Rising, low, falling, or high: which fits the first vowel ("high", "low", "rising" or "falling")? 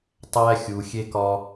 high